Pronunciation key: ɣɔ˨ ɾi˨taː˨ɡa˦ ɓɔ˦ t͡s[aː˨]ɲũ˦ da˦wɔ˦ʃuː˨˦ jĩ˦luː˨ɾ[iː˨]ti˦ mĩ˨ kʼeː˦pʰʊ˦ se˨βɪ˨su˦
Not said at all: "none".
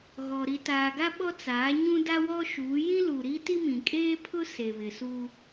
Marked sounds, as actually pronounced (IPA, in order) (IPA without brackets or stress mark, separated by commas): aː˨˦, iː˦